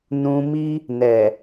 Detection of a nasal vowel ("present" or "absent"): present